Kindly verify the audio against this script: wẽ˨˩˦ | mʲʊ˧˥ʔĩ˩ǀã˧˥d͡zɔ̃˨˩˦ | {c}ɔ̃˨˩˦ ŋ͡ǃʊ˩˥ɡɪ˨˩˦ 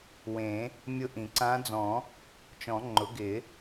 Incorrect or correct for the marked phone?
incorrect: t͡ʃ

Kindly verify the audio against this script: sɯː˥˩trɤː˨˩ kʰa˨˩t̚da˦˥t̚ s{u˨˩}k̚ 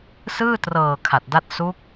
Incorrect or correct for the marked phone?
incorrect: u˦˥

